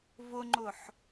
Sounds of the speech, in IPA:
vʊŋ͡ǃʊħ

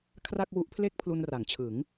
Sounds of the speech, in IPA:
kʰra˥˩k̚wu˦˥ʔ pʰle˥˩k̚pʰlu˧nra˩˦ŋt͡ɕʰɯ˩˦ŋ

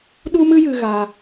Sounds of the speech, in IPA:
ɗu˦mɨ˦ jɨ˦ɣa˦

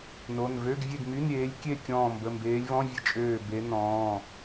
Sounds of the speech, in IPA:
no˩˧˩n vø˧˥˧ɡvʲe˥˨ɡmy˧˥˧n ɾʲeː˨˦lʲkʲe˥˨ kʲɔ̃ː˧˩mbə˩˧˩mbeː˨˦lʲvɔ̃˧˥˧ vʲə˥˨ t͡ʃʼøː˧˩be˨˦ nɔ̃ː˩˧˩

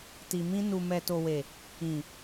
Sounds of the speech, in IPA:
ti˨mĩ˧ nu˨mɛ˨to˨we˨ | ĩ˨

